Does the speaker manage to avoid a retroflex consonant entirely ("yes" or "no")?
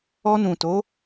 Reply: yes